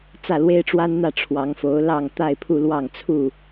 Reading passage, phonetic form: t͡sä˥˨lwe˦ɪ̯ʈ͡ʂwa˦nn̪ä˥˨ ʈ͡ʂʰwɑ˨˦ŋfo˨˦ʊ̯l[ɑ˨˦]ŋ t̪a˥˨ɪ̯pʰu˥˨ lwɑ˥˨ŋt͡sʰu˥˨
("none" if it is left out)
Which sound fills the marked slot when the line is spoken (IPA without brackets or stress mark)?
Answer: ɑ˥˨